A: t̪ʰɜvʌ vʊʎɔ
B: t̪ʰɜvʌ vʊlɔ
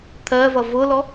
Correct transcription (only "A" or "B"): B